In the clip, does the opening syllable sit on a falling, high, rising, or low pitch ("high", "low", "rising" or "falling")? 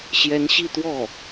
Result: rising